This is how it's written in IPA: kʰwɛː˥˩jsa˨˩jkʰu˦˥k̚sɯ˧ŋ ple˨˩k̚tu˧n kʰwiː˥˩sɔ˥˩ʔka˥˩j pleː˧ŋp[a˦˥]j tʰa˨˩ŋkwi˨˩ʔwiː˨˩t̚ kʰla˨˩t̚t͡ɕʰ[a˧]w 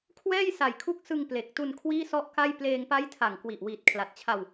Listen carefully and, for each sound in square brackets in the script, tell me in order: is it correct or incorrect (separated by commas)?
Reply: correct, correct